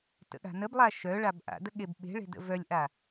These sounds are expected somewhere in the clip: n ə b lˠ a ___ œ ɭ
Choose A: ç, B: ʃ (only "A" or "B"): B